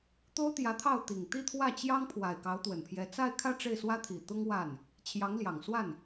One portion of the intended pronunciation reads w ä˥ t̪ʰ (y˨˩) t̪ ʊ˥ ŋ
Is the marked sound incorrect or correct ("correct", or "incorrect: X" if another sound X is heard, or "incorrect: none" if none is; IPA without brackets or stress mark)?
incorrect: i˨˩